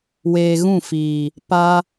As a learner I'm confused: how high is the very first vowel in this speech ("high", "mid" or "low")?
mid